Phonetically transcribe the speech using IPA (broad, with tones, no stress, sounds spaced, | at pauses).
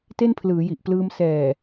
t e˥˩ n pʰ l ɯː˩˦ j i˨˩ ʔ p l ɯː˧ m s ɛː˨˩